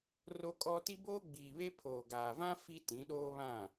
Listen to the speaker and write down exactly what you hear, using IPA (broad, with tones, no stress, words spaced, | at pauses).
ro˦kʼɔ˦ ti˦boː˦ɡ͡biː˨βe˦ pʰoː˨ɡaː˨vã˦ fi˦ tĩ˨˦ɗoː˦βã˦˨